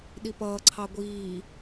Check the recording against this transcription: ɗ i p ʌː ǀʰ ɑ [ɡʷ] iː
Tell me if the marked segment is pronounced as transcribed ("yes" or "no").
yes